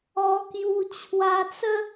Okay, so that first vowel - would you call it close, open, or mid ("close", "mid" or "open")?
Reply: mid